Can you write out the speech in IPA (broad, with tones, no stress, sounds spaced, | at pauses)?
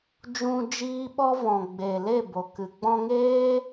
d͡ʒ ũ˧ d͡ʒ iː˦ ɓ ɔ˦ v ɔ̃˨ ɡ͡b e˨ l e˦˨ b o˨ k ɨ˨ ɡ͡b ɔ̃˧ ŋ eː˦